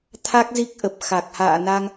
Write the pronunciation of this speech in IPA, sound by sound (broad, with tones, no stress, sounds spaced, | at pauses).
t̪ʰ a˦˥ k̚ z i˦˥ k̚ ʔ ə˨˩ p̚ x a˨˩ k̚ h a̰ː˧˨ n a˧ ŋ